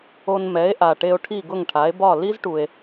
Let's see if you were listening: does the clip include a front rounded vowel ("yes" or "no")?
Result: no